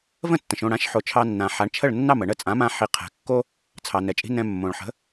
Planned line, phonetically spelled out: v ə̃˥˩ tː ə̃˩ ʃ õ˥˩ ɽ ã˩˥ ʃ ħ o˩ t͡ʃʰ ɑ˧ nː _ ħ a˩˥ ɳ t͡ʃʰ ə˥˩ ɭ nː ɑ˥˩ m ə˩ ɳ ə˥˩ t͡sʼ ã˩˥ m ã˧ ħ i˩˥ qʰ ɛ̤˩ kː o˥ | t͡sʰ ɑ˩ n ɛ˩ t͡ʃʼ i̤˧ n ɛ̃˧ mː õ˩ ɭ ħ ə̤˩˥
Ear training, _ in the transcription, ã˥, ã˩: ã˩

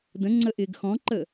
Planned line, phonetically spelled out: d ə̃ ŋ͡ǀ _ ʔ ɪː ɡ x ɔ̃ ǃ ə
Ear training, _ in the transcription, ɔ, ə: ə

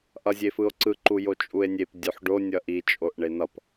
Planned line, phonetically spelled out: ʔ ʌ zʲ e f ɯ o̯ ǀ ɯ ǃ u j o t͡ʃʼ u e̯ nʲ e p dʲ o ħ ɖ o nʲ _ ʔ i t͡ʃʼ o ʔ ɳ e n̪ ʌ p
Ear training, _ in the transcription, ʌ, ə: ʌ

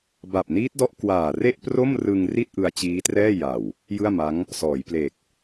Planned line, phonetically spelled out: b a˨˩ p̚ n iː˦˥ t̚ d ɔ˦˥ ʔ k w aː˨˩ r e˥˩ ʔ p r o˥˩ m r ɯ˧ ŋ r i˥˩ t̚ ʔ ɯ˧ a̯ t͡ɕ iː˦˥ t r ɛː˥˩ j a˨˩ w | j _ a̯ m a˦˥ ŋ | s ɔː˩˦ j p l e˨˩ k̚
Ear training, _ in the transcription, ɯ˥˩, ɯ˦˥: ɯ˥˩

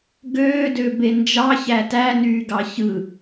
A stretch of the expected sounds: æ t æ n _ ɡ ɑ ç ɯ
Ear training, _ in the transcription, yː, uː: yː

